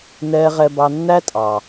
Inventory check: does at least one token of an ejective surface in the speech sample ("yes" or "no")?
yes